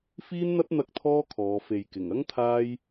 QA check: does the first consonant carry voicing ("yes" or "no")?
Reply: no